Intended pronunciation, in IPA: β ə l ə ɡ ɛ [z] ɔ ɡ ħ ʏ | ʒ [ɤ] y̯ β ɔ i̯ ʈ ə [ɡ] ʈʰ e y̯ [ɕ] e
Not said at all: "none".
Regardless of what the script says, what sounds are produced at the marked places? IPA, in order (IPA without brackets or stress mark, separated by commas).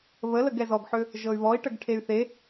z, ɤ, ɡ, θ